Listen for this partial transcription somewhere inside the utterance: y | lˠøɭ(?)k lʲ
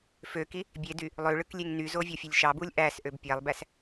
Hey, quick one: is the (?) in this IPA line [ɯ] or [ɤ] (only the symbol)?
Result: ɯ